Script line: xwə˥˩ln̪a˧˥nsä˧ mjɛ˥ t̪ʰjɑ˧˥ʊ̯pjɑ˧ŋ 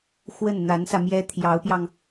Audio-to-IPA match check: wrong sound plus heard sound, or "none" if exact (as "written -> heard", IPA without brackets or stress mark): l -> n